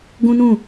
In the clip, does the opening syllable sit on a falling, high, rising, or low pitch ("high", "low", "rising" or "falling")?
high